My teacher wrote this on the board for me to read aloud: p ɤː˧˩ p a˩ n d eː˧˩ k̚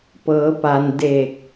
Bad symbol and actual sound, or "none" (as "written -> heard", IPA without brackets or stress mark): ɤː˧˩ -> ɤː˩˧